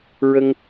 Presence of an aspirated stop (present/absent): absent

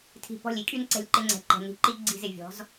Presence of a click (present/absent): present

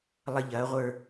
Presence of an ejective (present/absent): absent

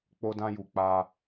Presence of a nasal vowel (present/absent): present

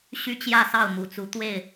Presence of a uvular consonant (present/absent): absent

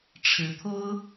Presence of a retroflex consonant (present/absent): present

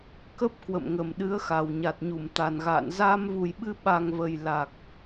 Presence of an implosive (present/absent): present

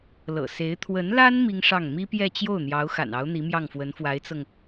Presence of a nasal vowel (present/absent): absent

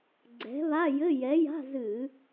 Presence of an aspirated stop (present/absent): absent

